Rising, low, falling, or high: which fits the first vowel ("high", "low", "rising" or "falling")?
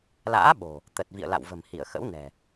rising